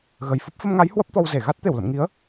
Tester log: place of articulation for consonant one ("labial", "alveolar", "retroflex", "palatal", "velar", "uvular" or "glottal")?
velar